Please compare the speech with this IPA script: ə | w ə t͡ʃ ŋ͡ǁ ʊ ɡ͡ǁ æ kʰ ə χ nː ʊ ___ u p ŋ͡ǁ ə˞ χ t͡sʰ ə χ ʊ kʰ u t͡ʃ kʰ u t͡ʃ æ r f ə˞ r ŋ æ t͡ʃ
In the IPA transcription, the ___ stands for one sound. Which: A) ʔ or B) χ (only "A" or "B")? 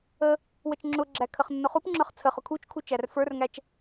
B